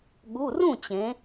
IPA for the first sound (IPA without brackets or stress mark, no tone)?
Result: ɠ